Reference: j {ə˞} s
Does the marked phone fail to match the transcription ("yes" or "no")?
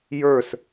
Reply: no